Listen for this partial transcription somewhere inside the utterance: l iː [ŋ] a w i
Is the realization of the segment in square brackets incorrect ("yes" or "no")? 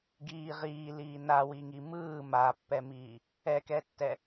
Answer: yes